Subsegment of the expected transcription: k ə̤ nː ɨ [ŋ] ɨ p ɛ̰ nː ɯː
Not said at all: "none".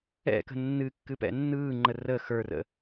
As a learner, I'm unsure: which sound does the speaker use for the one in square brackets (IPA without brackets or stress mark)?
kː